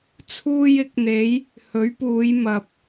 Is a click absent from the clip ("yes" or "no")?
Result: yes